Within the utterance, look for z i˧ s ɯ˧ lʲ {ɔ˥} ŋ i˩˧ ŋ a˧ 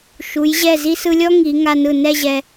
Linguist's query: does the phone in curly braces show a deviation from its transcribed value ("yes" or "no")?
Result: no